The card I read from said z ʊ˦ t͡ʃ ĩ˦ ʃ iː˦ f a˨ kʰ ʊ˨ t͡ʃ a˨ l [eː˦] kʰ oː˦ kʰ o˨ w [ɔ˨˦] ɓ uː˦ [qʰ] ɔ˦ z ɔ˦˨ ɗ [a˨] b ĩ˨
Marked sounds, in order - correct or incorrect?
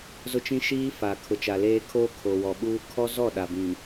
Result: correct, incorrect, incorrect, correct

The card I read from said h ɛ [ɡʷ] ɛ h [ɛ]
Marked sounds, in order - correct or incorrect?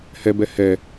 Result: incorrect, correct

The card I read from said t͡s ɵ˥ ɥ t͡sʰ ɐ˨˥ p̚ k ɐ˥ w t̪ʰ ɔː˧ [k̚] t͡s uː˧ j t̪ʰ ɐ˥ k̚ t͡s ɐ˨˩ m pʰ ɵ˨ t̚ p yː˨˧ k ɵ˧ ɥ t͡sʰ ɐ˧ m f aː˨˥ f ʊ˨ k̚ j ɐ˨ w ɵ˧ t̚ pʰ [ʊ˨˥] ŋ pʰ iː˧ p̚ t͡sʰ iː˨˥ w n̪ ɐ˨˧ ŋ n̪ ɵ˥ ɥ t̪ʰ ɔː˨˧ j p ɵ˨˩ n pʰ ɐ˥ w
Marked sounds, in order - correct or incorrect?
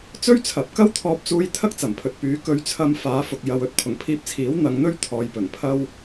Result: incorrect, incorrect

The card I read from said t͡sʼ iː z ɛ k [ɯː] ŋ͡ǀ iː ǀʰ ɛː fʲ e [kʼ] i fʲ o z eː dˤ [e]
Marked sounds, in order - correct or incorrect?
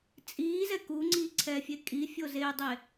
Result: incorrect, correct, correct

